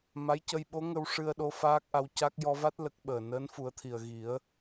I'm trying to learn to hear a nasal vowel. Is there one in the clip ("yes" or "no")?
no